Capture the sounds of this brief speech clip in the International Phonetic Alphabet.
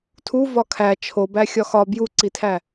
tʰuvɒ kʰæ t͡ʃʰobæxʲɒ xɒ bjuǀitʰæ

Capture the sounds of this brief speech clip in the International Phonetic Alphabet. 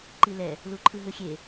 ǃilɛ | luǃʰɯɦɯxʲe

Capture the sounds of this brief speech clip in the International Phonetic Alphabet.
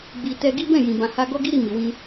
ɡ͡bi˨ tɛ˧ɡi˦bɛ̃˦˨jĩ˨ bã˨ha˧ɡɔ˦ɡi˦ ɾi˦˨mi˨wĩ˧

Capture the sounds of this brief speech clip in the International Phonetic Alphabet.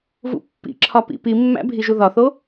vṵpːḭǁʰɒpḭ pimːæ̰ bʱiʒuðɒθo

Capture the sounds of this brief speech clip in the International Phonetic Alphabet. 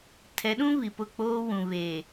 tʰɛ˨˦ɗũ˦ βi˨pʊ˦˨k͡poː˦wũ˨ βeː˨

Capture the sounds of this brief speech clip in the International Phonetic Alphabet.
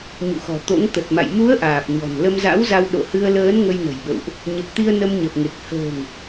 ɲṵ˧˨xɔ̤˨˩t̪o̰˧˥ŋ t̪ə˨˩t̚ma̰˧˨j mu˨˦ə̯ ʔaː˨˩p̚ɲɔ̤˨˩n lə˧mza̰˧˥wza˧w ɗo̰˧˨hɨ˧ə̯ləː˨˦n ŋə˧jnə̤˨˩jɓə̰˧˨wʔ | ɲə˨˩p̚t̪i˧ə̯ nə˧mɲə˨˩p̚ŋe˨˩k̚ hə̤ː˨˩ŋ

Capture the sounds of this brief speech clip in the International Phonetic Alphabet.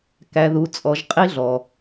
kæ˨ðu˨t͡sʼɔ˨ʒ qʼi˦ɮɔ˨

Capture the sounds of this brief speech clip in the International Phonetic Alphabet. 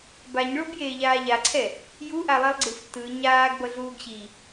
baɲɭobjeːʎaː ʎaǀʰɛ | juʔalˠilˠɡ͡ǀɯf tɯ ɲaːɡ bʌɮuːɡɕi

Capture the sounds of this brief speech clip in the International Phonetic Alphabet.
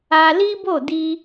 a˧li˦bo˦˨di˧

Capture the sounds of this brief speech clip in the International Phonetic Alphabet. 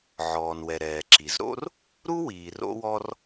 ʕɔː˩nwɛ˩ ɾɛː˩ǁi˩zɾo̰˥r | ɾu˥wiː˩ ro̰˥wɔ˥r

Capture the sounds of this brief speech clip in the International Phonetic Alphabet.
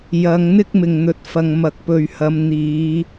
jɐ˨˧ŋn̪ɪ˥k̚ mɪ˨ŋn̪ɵ˨˥t̚fɐ˨ŋ mɐ˨k̚pɵ˨ɥ hɐ˨˧mn̪iː˨˧

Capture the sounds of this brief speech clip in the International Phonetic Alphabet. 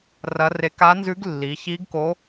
rɐ˧˥re˧˥ ka˧˥nzʉ˧˥ɡlːi˩˧çi˧˥ɡ ko˧˥

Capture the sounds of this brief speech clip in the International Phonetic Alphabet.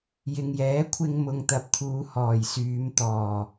jɪ˨ŋjɛː˨˥kʷʰɪ˧ŋ mʊ˨ŋt̪ɐ˨p̚t̪ʰuː˨˧ hɔː˨˩jsyː˨˧mt̪ɔː˨˩

